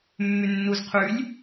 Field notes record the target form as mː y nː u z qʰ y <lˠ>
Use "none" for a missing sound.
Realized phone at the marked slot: lʲ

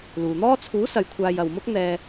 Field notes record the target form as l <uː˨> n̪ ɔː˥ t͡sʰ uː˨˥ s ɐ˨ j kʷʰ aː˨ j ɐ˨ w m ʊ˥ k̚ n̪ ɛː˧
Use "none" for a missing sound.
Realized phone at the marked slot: uː˨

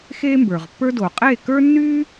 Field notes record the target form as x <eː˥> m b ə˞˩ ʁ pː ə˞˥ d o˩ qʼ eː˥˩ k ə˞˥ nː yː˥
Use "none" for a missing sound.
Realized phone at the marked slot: eː˥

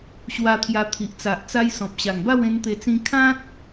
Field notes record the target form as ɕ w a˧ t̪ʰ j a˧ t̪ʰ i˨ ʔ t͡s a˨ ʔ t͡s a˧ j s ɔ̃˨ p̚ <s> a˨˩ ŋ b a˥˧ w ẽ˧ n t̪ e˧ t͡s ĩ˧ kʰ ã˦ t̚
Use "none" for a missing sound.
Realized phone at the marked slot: ɕ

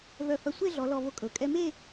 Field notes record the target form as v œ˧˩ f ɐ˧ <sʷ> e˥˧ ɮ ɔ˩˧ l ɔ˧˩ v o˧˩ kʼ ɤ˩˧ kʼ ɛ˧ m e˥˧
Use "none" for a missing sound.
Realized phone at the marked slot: sʷ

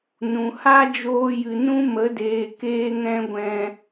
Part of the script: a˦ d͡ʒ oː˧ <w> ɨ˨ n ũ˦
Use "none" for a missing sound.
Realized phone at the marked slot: j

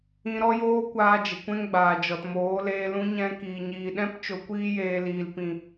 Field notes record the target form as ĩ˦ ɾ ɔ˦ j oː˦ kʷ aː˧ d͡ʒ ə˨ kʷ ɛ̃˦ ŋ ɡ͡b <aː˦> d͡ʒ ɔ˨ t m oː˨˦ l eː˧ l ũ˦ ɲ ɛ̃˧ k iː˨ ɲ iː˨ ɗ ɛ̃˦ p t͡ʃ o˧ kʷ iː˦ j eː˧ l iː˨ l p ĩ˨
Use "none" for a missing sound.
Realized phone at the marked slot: aː˨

